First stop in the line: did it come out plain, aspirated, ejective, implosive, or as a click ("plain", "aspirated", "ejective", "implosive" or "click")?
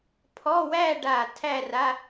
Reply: aspirated